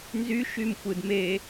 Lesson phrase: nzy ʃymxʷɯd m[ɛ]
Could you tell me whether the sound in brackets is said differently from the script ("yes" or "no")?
yes